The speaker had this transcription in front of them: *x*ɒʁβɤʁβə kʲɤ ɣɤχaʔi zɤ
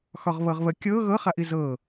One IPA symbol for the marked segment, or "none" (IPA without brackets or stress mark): x